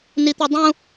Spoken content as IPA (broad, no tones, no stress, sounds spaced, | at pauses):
n i t̪ i dˤ ũ